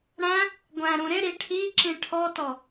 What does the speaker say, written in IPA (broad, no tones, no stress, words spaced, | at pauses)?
ɽæ̃ | ɡʷæ̃ɾũ ɾɪ ɾiʈʰiǁĩ ʈʰɔtɔ